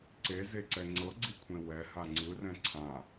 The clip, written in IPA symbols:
ǀ e z e ǀ ɛ ŋ͡ǀ ɤ ɡ͡ǀ i kʷʰ ẽ w ɛ h a ŋ͡ǀ ɯ r ɛ̃ ǀʰ ã

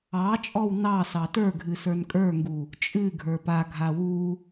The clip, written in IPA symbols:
ɑ t͡ʃʼ ɔ w n ɑ s ɑ t ə˞ ɡʱ ɨ s ə˞ n kʼ ə˞ ŋ ɡ u | t͡ʃʼ ɨ ɡʱ ə˞ p a ɡʱ a w u

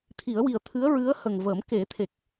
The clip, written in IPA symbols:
t̪ʰ i˨˩˦ ə̯ w i˨˩ ə̯ t̪ʰ ɨ˧˥ ə̯ ɹ ɨ˧˥ ə̯ h ə˨˩ ŋ v əː˨˩˦ m k e˨˩˦ t̪ʰ e˨˩ k̚

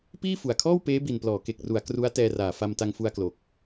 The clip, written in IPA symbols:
p iː˥˩ f u˨˩ a̯ kʰ ɔː˥˩ w p eː˦˥ b i˨˩ n p l ɔː˩˦ k e˨˩ k̚ r u˩˦ a̯ k r u˦˥ a̯ t ɛː˧ r aː˩˦ f a˧ m t a˧ ŋ f u˧ a̯ k l o˨˩ k̚

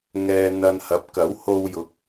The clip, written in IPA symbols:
ŋ ɛː˨ n̪ ɐ˨ n h ɐ˨˥ p̚ k ɐ˨˥ w h o˧ w j ʊ˨˥ k̚

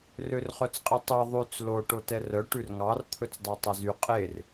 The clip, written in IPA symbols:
r ø r χ œ t͡s qʼ e tˤ ɛ ðˤ ʉ t͡s l o ʈ o t ɛ r œ ʈ ʉ r ŋ ɑ r t̪ʰ ɵ t͡s dˤ ɑ tˤ ɛ z y qʼ e r

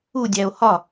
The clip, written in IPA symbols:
u dʲ æ o̯ h ɒ

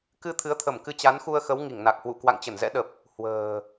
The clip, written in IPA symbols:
k ɨ˧ t̪ʰ ɨ˨˦ ə̯ t̪ʰ ə˧˩ m k ɨ˧ t͡ɕ a˨˦ n x u˧ ə̯ x ə˨˦ w ŋ i˧˩ ŋ n a˨˩ k̚ h w ṵ˧˨ k w a̰˧˨ ŋ t͡ɕ ə˧˩ n z ɛ̰˧˥ ɗ ə˨˩ p̚ | h w ə̤ː˨˩

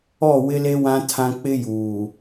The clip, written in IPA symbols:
ɔ˦˨ w ɪ˦ l e˦ w ã˦ tʰ ã˦ k͡p ɪ˦ j uː˨

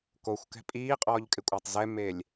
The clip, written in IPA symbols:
k o xʷ k ɛ̤ pʼ iː qʼ ɔː ʎ kʼ ɪ kʷʼ a tˤ z ɛ m e lʲ

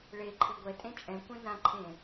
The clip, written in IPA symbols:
ɭ e ǃʰ e ɡʷ ɛ tʼ ẽ t͡ʃʼ ɛ̃ kʷ ɛ̃ n ã ǃʰ ẽ

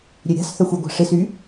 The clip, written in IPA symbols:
ɾʲ ø ɾʲ a̤ s θ œ xʷ y ɡʷ a̤ ʂ ɪ s y

